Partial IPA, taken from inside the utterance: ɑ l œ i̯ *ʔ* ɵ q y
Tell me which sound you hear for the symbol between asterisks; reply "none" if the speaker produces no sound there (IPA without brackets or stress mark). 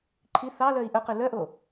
ʔ